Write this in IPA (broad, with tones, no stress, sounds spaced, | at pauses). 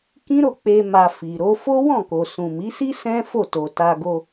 k ĩ˦ ɾ o˦˨ k͡p e˧ m a˨ f i˨ ɾ o˧ f o˦ w ɔ̃˦˨ k o˨ s ũ˨ m i˨˦ s i˦ s ɛ̃˦ f o˦˨ t o˨ t a˧ ɡ o˧